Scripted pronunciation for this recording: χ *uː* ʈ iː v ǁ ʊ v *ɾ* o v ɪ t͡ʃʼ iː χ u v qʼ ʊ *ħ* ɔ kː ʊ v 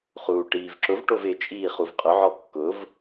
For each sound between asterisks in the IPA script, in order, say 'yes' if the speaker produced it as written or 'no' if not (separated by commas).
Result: yes, no, no